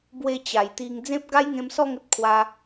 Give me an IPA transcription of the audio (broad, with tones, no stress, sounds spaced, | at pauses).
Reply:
b w e˧ t͡ɕ a˨˩ j t̪ i˧ ŋ d͡z ẽ˦ p̚ ɡ a˦ j ŋ ẽ˧ m s ɔ˥˧ ŋ ə˦ t̚ kʰ w a˧